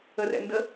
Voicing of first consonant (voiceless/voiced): voiced